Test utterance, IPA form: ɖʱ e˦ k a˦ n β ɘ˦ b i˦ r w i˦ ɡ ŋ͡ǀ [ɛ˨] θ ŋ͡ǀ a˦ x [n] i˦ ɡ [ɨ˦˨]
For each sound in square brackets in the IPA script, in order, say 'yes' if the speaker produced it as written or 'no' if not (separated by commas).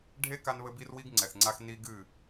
yes, yes, yes